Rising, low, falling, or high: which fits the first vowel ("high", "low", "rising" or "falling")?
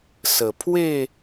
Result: low